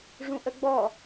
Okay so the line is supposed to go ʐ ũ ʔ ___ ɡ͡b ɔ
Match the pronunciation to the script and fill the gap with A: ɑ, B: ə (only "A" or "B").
B